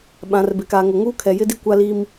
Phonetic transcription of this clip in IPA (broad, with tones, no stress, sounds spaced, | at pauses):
ɓ ã˨ r b e˨ k aː˨ ŋ o˨ ŋ uː˦ kʰ ɛ˨ j ɪ˦ d i˦ kʷ a˦ l i˦ m